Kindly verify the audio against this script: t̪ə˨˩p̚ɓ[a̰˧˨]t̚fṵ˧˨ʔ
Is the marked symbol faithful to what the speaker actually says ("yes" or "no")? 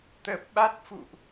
no